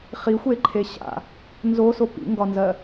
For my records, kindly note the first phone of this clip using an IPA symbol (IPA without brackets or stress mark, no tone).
χ